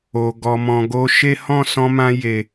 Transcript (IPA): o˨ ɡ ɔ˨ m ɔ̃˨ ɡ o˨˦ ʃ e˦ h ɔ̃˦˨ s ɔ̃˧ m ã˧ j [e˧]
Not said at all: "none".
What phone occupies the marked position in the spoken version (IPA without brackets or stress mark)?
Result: e˨